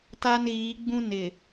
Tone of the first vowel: high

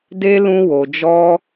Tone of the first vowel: high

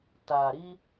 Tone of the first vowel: low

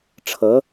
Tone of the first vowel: rising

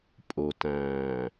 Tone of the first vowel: low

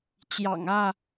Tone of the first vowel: low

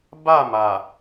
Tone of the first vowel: falling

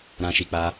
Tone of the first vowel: high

